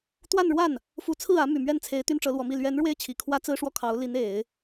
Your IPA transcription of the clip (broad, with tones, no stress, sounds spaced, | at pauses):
t̪ w a˥˧ n ɻ w a˥˩ n | f u˧˥ t͡sʰ ɹ̩˥˩ ä˧˥ m y˨˩ m ɥ ɛ˥˩ n t͡sʰ e˧˥ ɪ̯ t̪ y˥ n ʈ͡ʂ ɤ˧˥ l w ɔ˧˥ m i˥˩ l ɥ ɛ˧˥ n ɻ w e˥˩ ɪ̯ t͡ɕʰ i˨˩ kʰ w ä˥ t͡s ɹ̩˥ ʂ w ɔ˥˩ kʰ ɑ˧˥ ʊ̯ l i˧˥ n e˨˩˦ ɪ̯